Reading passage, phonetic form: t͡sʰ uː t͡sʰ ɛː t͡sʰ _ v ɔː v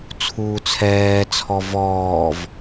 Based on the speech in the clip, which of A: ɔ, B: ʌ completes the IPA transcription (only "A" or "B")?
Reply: A